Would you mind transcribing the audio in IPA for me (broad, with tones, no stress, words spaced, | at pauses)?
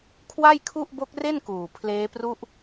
kʰwa˥˩jkʰu˥˩ʔ bo˦˥k̚re˥˩nkuː˨˩ pʰleː˦˥pru˥˩ʔ